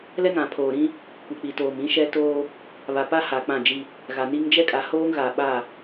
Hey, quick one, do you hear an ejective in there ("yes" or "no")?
yes